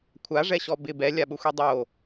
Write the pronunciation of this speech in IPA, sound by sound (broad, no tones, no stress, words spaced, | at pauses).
kʷʰaʐɛɕɔ bɪ bɛlʲaɓʊxʷi dˤo